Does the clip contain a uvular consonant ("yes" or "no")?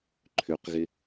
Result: yes